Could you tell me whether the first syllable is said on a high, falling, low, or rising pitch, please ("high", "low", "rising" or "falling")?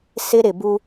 high